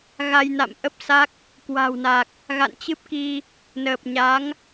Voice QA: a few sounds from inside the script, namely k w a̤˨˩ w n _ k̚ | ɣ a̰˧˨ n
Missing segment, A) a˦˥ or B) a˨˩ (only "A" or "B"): B